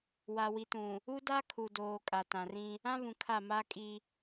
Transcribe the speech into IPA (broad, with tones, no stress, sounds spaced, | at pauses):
w a˨ w i˨ t ũ˨ | u˦ d a˦ kʰ u˨ d oː˨ kʼ a˨ t ã˨ r ĩ˦ | ã˦ β ũ˨ kʰ a˦˨ m aː˦ kʼ i˦